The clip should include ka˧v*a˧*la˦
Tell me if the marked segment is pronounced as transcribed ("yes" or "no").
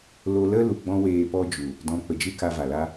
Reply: no